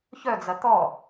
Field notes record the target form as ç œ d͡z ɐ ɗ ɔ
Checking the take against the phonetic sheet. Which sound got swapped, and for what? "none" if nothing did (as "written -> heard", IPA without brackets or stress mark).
ɗ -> t̪